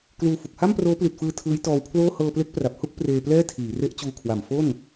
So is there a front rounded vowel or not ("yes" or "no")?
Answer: no